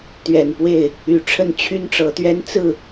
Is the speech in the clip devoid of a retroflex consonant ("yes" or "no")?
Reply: no